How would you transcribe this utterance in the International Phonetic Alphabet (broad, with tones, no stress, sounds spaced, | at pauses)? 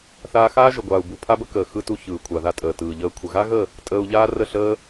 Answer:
θ aː˧ x aː˦ ʒ ə˨ ɡʷ aː˨ u̯ b u˨ pʰ a˦ b ə˦ k əː˨ x ɯ˧ t u˧ ç ɯː˨ kʷʰ a˨ ð a˧ tʼ əː˨ t ɯː˨ ʎ əː˧ kʷʰ ə˨ ɣ a˦ ɣ ə˦˨ | tʼ əː˧ u̯ ʎ aː˦ r ə˦˨ ɬ əː˦